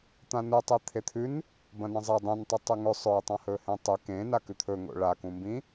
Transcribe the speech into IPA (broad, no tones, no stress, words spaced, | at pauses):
t̪ãnutˤi t̪ʰet̪ʰʉn | bɐ̃nɐ̃zˤe dˤũntˤu tˤʉŋɵ sˤɵjtˤã hɵhẽtˤɨ kẽ nakʉt̪ʰɵŋo̰ ɭakũmbĩ